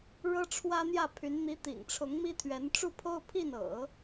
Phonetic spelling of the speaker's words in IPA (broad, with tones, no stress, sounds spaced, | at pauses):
ɻ ɤ˥ ʈ͡ʂʰ w ä˥ n̪ j ä˥˩ pʰ y˧˥ n n̪ i˧˥ t̪ ḭ˨˩ ŋ ʈ͡ʂʰ ʊ˧˥ ŋ m i˥ t̪ʰ ɥ ɛ˧˥ n ʈ͡ʂ u˥˩ pʰ o˥ ʊ̯ pʰ i˥˩ n ɤ̰˨˩˦